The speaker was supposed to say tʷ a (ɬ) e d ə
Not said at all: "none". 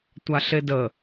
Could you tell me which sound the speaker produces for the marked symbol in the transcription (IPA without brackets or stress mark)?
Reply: ɬ